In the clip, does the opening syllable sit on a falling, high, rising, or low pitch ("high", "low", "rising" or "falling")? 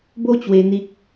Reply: high